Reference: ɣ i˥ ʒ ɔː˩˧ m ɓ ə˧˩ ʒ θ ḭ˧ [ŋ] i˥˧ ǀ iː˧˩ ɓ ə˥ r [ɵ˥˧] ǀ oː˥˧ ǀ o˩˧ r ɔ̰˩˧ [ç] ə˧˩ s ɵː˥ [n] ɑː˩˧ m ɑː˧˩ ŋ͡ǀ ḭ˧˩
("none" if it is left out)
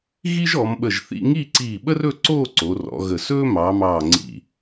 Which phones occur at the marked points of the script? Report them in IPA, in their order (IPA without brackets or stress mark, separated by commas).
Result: ŋ, ɵ˥˧, ɣ, m